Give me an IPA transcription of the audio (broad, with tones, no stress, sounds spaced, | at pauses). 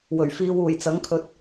w ɵ˨˩ ɥ f iː˧ w uː˨˩ j t͡s ɐ˨˥ ŋ kʰ ɵ˨˥ t̚